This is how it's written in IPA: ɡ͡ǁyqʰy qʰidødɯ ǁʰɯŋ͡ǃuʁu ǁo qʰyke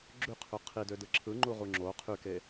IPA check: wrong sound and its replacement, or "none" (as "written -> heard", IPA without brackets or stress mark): ǁ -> ŋ͡ǁ